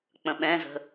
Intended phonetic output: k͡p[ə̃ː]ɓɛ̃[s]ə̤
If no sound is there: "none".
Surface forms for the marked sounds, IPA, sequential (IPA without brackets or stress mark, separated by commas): ə̃, z